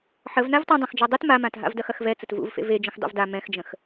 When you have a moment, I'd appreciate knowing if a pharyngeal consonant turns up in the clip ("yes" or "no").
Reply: yes